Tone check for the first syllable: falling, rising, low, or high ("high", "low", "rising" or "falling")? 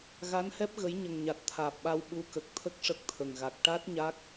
rising